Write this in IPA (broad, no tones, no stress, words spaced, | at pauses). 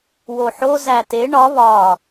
woħozæ te ɳɒ βɒ